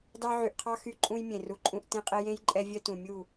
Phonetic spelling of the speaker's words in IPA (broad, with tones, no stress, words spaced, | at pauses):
dɑ˧ ʕy˨ʔqʰɑ˦ xy˦ǃʼũ˦j mʲẽ˨ru˧ǃʼũ˦ʔ tẽ˧qʼe˧jẽ˦jǃʼɛ˧ vʲœ˦tũ˨ mʲu˦˨